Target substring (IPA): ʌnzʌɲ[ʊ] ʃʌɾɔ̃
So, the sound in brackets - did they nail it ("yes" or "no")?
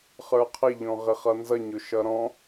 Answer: yes